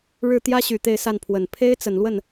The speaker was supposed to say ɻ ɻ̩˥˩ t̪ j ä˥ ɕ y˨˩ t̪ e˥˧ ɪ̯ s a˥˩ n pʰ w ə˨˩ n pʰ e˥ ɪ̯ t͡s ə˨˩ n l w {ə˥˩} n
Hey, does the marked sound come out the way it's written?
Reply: yes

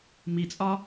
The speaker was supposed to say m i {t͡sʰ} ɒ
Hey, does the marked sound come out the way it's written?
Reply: no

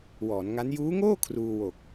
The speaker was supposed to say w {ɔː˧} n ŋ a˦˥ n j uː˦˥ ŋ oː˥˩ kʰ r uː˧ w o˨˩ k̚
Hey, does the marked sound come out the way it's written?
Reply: no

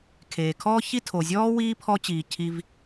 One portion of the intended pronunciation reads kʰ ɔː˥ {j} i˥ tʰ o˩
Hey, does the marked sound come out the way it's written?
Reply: no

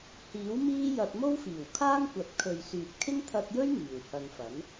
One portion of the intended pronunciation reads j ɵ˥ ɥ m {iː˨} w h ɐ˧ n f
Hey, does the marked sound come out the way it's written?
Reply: yes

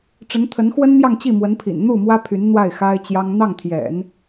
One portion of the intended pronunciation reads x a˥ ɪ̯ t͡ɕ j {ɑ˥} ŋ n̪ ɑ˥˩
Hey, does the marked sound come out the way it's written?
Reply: yes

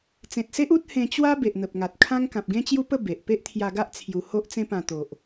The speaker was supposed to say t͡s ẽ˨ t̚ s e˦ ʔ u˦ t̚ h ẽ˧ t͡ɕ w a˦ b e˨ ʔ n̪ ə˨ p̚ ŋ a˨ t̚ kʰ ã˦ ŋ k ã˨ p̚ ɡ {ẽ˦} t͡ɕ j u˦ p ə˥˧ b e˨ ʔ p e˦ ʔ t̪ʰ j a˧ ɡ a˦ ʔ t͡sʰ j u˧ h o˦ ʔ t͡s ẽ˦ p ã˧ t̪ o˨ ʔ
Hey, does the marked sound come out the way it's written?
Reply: yes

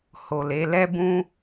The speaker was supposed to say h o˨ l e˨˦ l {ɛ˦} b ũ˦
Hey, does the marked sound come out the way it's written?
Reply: yes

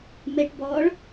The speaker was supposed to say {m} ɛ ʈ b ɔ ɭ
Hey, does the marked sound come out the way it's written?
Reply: yes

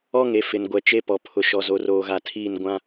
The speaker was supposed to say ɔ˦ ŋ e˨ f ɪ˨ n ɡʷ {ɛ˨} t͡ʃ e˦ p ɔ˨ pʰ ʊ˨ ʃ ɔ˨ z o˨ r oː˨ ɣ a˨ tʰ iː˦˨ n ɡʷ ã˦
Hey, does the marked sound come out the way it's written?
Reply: yes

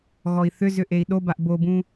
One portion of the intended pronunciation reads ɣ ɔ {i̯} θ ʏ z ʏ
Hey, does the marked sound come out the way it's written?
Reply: yes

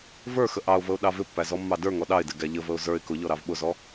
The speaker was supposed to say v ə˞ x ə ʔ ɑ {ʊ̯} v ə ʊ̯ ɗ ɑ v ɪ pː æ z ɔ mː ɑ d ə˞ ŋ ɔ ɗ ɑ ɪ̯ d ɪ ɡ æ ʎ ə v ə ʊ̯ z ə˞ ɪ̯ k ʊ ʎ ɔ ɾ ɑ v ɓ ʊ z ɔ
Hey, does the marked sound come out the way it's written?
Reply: yes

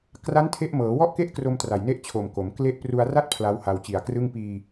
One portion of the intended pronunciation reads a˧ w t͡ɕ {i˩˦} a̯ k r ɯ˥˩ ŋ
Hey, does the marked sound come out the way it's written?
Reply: no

